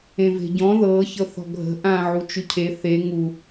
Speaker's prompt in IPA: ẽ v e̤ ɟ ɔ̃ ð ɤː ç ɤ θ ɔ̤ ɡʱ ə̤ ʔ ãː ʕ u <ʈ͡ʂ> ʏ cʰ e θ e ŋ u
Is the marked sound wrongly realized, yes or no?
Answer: yes